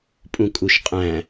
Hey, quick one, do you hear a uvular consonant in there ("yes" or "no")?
yes